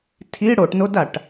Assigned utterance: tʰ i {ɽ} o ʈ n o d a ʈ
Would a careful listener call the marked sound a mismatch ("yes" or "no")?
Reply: no